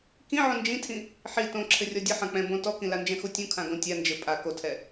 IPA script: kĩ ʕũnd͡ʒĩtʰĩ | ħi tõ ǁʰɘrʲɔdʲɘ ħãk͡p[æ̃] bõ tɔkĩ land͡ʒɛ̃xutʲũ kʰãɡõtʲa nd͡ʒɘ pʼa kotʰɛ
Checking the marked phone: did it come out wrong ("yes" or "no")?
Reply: yes